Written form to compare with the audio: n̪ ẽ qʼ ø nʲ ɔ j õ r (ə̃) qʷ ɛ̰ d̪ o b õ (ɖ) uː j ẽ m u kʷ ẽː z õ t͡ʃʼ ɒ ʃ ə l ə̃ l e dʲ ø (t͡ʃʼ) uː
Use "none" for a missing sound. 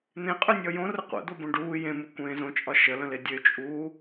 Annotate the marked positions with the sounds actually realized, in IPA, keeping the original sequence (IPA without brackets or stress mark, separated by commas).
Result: ə, ɖ, t͡ʃʼ